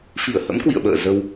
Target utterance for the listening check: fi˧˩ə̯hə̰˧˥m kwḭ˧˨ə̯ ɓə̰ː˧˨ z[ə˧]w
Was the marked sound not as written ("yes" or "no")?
no